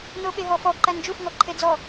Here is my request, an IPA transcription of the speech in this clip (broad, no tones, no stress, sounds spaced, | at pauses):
n o ɓ e ɦ ɔ f ɔ ǃ æ n d͡ʒ u f ŋ ɔ ǃʰ e d͡z ɔ